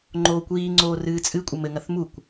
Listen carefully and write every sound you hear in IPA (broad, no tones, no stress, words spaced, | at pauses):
ŋ͡ǃoːkʷiːŋ͡ǀoː rɨːt͡sʼɨkʷʼɘ mɘŋɐθ mukʷ